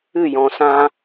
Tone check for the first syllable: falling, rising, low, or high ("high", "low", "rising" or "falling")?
falling